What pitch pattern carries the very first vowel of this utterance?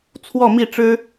falling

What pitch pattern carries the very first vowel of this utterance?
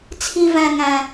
high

